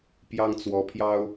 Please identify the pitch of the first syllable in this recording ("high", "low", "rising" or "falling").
high